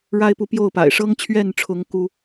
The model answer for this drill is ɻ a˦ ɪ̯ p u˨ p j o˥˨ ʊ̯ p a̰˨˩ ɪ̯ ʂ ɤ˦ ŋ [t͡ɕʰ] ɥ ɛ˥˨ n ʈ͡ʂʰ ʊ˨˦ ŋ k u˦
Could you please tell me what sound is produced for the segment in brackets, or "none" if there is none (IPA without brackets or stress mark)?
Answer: t͡ɕʰ